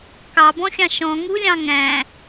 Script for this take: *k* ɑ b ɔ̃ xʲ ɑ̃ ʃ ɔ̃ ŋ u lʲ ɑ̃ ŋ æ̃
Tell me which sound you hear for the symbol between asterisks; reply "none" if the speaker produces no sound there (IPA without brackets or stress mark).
k